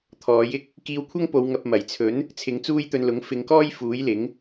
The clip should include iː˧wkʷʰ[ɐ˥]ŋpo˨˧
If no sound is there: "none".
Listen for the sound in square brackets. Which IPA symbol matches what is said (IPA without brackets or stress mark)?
ɐ˥